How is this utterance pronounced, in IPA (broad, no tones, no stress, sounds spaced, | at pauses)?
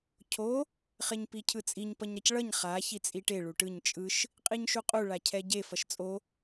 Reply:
cʰ o | χ e ɲ p i cʰ ɯ t͡sʼ i ɲ p ʌ ɲ ɾ ʌ c ɭ ʌ ɲ χ a ç i t͡sʼ i ʈ e ɭ u ʈ ɯ ɲ t͡ʃʼ ɯ ʃ | qʼ i ɲ ʃ u qʼ u ɭ a cʰ ɛ ɟ e f ʌ ʃ t͡sʼ o